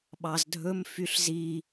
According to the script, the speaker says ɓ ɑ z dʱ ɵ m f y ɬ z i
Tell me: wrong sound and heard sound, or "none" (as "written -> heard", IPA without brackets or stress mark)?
none